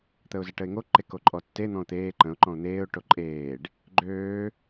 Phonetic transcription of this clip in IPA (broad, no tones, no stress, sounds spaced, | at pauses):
t̪ ə ʊ̯ z ə ʈ ə ɪ̯ ŋ o ǃ e k o ǃʼ ɔ tː e n̪ ɔ̃ ʊ̯ t̪ eː ǃ ə̃ ʊ̯ ǃ ɔ̃ ʊ̯ n̪ eː ʊ̯ ʈ o ǃʼ eː ɖ | ɡ͡ǃ øː